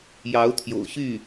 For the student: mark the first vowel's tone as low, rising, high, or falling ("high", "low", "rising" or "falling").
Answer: rising